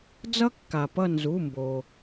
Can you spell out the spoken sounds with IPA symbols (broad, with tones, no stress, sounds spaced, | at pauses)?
d͡z ʌ˥ kː a˩ p ʌ˦˨ n z u˩˧˩ m b o˩